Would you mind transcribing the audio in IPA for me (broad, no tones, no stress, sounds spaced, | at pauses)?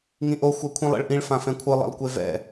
ŋ ĩ ʔ o xʷ ɛ kʷʰ ĩ lˠ ḛ ɭ ʔ ĩ ɭ f ã f ɛ̃ kʷʰ ɯ lˠ ḭ lˠ kʷ e v ɛ̰